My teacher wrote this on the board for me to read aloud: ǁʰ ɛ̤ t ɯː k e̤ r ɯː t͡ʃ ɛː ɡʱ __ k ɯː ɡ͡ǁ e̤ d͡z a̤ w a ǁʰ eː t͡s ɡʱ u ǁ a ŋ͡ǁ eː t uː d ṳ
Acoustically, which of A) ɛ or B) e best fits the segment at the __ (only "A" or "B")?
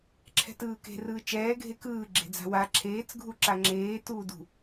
B